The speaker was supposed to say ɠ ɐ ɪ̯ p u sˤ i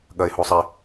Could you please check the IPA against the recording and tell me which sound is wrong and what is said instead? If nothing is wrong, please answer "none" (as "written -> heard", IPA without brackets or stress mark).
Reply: p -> h